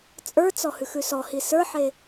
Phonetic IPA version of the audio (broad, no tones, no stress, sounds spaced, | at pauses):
t͡sʼ ə˞ t͡s ɔ h ʉ x ʉ s ɔ h i s ə˞ ħ e